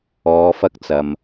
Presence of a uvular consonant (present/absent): absent